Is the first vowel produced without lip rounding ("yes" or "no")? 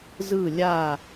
yes